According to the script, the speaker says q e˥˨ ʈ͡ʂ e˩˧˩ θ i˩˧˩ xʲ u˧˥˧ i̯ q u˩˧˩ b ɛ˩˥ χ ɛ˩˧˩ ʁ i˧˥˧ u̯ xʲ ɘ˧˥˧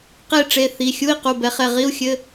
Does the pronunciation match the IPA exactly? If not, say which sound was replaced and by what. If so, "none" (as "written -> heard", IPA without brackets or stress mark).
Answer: none